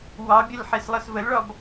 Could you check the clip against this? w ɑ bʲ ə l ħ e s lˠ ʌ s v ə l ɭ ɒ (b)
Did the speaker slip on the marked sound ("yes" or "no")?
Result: no